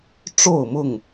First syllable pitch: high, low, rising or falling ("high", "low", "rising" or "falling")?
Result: falling